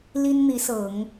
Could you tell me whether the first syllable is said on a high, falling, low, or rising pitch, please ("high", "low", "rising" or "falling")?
high